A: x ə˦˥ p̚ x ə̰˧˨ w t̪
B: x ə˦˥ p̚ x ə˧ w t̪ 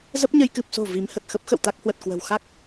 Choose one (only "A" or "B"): A